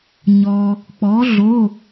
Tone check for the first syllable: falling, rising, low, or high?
low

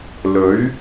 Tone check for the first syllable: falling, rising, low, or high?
rising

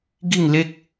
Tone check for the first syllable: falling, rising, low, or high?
falling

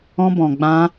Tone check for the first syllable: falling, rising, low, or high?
high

